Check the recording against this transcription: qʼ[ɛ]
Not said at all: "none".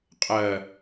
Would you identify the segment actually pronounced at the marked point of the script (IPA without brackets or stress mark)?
ɜ